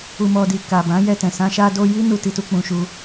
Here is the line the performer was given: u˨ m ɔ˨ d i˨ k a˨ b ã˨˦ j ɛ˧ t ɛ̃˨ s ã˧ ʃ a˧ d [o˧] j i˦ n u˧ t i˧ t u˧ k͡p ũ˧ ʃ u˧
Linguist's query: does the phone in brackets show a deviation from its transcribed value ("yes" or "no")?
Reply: no